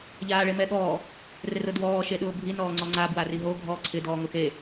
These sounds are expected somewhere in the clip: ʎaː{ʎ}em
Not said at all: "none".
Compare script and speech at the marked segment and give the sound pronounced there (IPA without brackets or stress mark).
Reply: ɭ